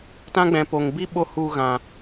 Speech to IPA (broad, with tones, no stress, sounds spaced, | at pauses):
t ã˦ ɡ͡b ɛ̃˧ p o˧ ŋ b i˦ ɓ o˧ h u˧ ɣ ã˧